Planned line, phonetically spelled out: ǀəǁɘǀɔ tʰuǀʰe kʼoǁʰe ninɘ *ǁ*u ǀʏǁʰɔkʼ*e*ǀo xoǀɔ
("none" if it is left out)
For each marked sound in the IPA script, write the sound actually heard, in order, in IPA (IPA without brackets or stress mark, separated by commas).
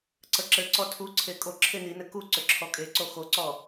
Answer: k, e